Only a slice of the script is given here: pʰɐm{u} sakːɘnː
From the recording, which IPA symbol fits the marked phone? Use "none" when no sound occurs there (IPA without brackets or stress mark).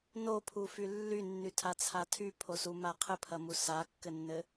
u